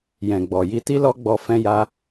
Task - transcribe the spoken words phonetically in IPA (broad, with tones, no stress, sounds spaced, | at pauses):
j ɛ̃˨ ɡ͡b ɔ˨ j i˧ t i˦ l ɔ˦ ɡ͡b ɔ˧ f ɛ̃˦ j a˦